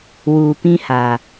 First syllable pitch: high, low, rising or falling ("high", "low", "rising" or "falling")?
low